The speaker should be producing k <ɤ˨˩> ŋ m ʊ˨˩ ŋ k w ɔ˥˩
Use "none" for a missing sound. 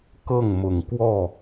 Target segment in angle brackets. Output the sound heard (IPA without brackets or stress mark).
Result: ɤ˥˩